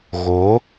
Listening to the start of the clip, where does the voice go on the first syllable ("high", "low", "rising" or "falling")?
rising